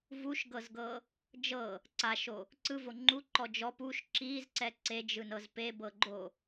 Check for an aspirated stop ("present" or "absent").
absent